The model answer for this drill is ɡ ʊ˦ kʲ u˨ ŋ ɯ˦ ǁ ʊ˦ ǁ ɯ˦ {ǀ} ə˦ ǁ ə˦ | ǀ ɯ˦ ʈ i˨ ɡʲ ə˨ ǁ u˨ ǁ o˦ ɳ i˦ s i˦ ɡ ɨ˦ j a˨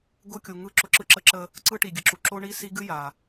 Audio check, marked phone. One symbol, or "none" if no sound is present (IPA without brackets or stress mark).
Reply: ǁ